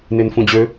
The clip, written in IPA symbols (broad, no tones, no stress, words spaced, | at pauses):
nenfũd͡ʑø